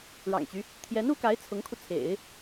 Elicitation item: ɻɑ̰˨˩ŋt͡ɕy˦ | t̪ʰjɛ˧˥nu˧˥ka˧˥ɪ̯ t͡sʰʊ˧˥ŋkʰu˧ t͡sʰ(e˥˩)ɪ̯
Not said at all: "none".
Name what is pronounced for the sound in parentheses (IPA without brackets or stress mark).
ḛ˨˩˦